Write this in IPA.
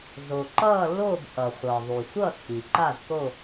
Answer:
z o˩ ǃ ʌː˥˧ lː oː˥˧ b ʔ ʌ˩ χʷ ʌː˩ ðˤ u˩ sʷ ʌ˥˧ tʰ i˩ ǃ a˥˧ z k o˥˧

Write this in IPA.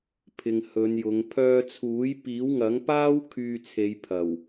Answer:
pʰ ɪ˨ ŋ h ɵ˨˧ n j ʊ˨˧ ŋ pʰ œː˧ t͡sʰ uː˨˥ j p iː˨˥ w ŋ ɐ˨˥ ŋ p aː˥ w kʰ yː˧ t͡sʰ e˨˧ j pʰ ɐ˨˩ w

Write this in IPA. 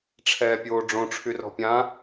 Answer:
ʈ͡ʂʰ ɛː pʲ oː ɖ͡ʐ õ ʈ͡ʂʰ y r ɔ̤ pʲ ã

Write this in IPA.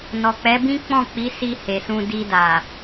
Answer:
n ɔ˨ k͡p ɛ˨˦ b ĩ˦ k͡p ɔ̃˦˨ k͡p i˨˦ s i˧ h e˨ s ũ˧ d i˧ d a˨

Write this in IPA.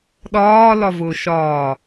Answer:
ɗ ɒː l ɒ v ʊː ʃ ɒː

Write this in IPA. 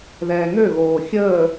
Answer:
ð ɛː ŋ ø ɣ oː xʲ əː

